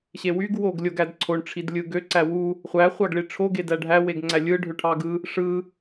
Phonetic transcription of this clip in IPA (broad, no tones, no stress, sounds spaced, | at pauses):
ɕ e w y ɡ w o ɡ lʲ o ɡ æ d ǀʰ o ɳ ʈ͡ʂʰ i d lʲ ɯ ɡ ø ǀ æ w u | χʷ æ χʷ ɑ ɡ ɭ i ʈ͡ʂʰ o ɡ e d æ ɖʱ æ w e ɡ ŋ͡ǀ æ lʲ ɯ ɖʱ ø ʈʰ ɑ ɡ ɯ | ʂ ɯ